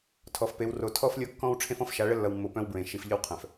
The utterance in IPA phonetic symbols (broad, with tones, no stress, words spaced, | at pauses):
tʰɔ˨fpe˨˦w ro˨ tʰɔ˦flʲo˦kːɔ̃˦w ʈ͡ʂʰẽ˦fɔ̃˦f ʃa˨˦ɭə˦lːʌ˨wmːo˨ pœ̃˦wbɹẽ˨ ʃi˨fʎə˦w qʰœ̃˨f